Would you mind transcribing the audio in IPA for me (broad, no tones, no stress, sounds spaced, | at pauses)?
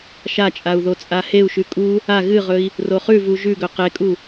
ʃ a t͡ʃʼ a u̯ ð o t͡sʼ a h e u̯ ʃ ʉ kʼ u | a ɣ ɨ ʁ ɵ i̯ | r o χ ʉ v u ʒ ʉ ɡ ɵ q e kʼ u